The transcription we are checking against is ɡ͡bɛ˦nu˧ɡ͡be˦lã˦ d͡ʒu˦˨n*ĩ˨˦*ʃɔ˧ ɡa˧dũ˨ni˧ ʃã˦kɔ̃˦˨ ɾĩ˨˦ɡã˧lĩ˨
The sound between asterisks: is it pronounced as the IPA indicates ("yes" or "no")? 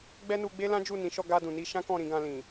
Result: yes